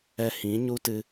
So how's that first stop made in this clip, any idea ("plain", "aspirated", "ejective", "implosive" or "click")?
plain